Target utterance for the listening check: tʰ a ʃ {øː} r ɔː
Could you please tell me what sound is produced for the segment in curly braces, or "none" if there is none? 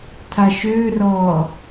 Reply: øː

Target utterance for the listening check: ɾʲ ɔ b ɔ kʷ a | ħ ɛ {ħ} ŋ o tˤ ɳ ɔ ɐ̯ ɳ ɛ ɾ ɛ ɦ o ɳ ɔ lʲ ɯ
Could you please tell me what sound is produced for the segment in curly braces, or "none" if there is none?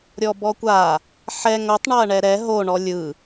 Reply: none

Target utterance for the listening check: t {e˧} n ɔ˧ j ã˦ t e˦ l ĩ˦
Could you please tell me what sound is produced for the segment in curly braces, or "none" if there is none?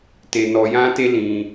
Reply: e˧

